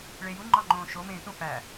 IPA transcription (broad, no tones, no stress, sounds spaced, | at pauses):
ɭ e j u ŋ͡ǃ ɒ ŋ͡ǃ õː ʃ o m ẽː t ũ f æ